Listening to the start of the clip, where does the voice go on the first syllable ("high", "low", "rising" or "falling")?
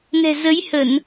low